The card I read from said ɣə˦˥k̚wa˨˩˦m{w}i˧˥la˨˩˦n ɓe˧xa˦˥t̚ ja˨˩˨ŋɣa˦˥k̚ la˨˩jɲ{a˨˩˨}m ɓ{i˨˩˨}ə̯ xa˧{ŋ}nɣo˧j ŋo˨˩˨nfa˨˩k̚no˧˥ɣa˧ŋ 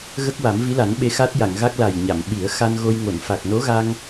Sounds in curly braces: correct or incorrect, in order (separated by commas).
incorrect, correct, incorrect, incorrect